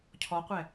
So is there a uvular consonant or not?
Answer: yes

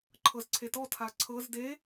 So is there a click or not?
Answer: yes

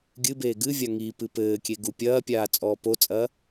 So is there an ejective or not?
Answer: yes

